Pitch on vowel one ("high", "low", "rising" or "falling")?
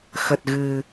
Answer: low